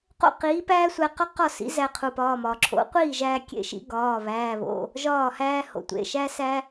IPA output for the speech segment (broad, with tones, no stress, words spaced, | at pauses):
qo̰˥˨qiː˨˥ pæː˥sʷæ˧qɒ˥ qɒ˥˨sḭ˨˥ zæ˧qʰu˩pɒː˩˧˩mɒː˩ ǁʰo̰˨˥qʷiː˥˨ʒæː˧kʲḛ˧ ʃḭ˨˥ ɡɒː˩˧˩βæː˩˧˩βo̰˩˧˩ | ʒɒː˥˨hæː˥ ho̰˩tʷḛ˩˧˩ ʃæ˥sæ˥